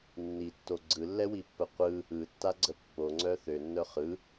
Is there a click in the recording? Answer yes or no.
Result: yes